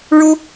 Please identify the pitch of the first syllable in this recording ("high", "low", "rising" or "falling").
high